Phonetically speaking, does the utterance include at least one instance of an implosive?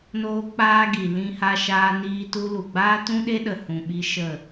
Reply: yes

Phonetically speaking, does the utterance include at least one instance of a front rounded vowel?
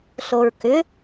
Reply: yes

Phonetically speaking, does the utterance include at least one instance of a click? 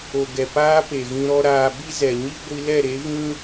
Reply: no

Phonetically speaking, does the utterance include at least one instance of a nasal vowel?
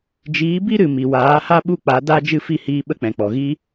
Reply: yes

